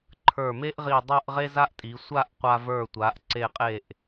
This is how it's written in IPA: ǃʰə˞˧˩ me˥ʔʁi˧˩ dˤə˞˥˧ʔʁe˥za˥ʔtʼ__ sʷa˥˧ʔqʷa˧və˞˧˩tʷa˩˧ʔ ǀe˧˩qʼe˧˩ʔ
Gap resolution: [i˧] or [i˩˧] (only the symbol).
i˩˧